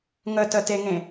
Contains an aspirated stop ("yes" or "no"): no